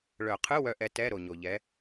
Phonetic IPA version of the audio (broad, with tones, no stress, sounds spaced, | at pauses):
ɭ œ˨˩˦ qʰ ɯ˧˥˧ w œ˥ ʔ ɛ˧˥ t ɛ˧˥˧ ɾ o˨ ɲ o˨ ʎ ɛ˧˥